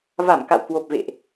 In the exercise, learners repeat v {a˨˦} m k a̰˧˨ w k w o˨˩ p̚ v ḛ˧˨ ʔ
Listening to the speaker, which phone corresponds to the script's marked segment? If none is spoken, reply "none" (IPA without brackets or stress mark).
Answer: a˧˩